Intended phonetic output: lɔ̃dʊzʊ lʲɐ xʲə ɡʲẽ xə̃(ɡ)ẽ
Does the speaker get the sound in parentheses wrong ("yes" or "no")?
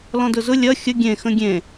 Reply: yes